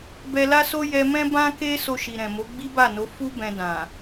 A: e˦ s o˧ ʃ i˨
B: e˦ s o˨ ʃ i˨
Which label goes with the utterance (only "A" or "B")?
A